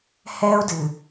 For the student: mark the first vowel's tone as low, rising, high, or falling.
high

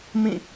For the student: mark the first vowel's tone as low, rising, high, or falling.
falling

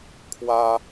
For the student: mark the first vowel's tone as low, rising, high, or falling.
high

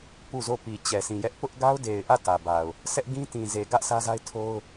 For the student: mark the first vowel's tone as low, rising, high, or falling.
falling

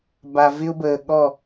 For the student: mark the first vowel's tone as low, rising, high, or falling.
low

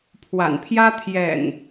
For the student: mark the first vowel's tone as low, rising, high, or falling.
low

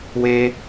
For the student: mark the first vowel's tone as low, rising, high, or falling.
high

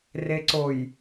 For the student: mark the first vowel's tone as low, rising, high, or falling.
low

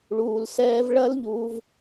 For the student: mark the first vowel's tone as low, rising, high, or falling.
low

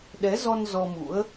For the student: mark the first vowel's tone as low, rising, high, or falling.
rising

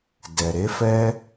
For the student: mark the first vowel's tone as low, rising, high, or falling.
low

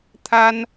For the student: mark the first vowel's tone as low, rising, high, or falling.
high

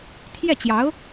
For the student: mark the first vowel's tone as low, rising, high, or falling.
falling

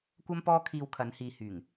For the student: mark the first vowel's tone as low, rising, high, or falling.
high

